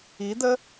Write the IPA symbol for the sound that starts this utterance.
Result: i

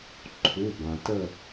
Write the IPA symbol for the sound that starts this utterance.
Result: ǃʰ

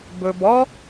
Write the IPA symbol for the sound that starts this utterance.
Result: b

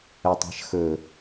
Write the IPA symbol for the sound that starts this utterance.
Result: ə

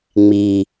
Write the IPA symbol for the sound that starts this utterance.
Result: ŋ͡m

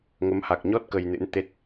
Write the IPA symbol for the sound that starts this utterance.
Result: ŋ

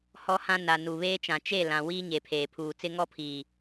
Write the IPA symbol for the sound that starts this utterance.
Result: h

